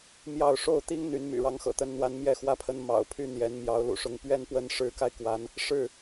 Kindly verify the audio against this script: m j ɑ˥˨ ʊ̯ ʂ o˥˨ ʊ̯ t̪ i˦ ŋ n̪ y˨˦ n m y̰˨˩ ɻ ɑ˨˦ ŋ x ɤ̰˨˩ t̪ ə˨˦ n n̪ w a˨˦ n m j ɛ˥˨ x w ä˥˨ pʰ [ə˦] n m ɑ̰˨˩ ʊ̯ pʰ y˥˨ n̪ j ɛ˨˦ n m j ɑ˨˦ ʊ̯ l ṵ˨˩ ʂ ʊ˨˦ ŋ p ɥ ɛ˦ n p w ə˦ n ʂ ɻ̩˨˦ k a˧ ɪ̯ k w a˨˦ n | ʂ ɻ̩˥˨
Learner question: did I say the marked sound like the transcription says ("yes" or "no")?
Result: yes